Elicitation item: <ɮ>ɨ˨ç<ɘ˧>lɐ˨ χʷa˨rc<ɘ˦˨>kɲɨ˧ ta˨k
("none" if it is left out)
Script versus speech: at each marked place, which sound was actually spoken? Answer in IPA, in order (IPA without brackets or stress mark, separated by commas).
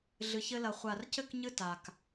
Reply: ɮ, ɘ˧, ɘ˦˨